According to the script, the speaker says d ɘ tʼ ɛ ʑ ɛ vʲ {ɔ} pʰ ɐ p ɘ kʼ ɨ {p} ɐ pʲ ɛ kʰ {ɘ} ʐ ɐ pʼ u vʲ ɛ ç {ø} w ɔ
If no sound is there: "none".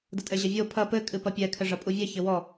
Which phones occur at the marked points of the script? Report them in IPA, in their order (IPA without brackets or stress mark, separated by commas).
o, p, ɘ, ɘ